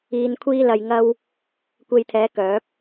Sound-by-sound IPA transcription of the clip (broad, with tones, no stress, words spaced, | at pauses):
iː˧nkʷʰiː˥lɐ˧jŋɐ˥w | kʷe˧jt̪ʰɛː˨˥ kœː˨˥p̚